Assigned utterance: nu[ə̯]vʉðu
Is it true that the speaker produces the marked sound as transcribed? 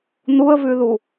yes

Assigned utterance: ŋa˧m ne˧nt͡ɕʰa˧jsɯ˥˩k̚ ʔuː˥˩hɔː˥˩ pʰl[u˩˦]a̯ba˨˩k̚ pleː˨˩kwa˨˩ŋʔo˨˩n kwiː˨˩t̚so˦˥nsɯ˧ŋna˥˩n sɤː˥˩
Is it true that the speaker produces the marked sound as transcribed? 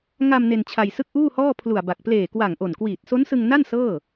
no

